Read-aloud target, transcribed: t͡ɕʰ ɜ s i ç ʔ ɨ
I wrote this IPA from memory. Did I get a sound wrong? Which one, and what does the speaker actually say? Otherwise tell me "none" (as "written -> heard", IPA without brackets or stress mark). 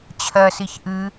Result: none